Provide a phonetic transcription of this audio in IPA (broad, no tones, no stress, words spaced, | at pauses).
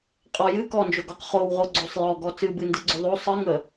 qʼɔ jɨ kɔnd͡ʒoɡɔq χowʁoɡ͡ǀosˤ jɔɡɔ t͡sɨbɨndɨɡ͡ǀo ðˤo sˤɨŋə